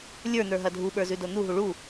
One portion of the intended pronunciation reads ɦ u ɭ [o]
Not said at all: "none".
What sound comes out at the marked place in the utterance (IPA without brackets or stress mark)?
u